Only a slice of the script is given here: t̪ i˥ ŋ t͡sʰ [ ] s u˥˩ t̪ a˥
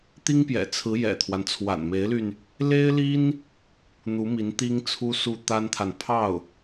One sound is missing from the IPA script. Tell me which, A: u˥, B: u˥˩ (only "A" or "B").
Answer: A